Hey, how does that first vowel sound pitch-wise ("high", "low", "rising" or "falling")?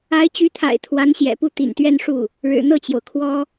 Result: rising